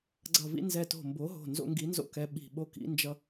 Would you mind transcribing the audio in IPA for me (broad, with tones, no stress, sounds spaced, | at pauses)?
ɡ͡ǀ ʌ˧˩ v ḭ˦ n z ɛ˧˩ t o̤˧˩ m b o˨˥ ɦ o̤˧˩ n z o̰˦ ŋ ɡ i˨˥ n z o̰˦ k ɛ˨˥ ɓ i̤˧˩ ɓ o˦ k ḭ˨˥ n d͡ʒ ʌ˦